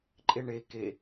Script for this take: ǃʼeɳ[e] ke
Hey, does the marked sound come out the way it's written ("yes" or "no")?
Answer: yes